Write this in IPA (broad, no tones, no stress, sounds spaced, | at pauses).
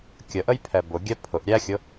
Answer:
kʲ ə ʔ ə j pʰ ɛ b ʊ ɡʲ ɛ pʰ ʊ ʔ ɾʲ æ xʲ ʊ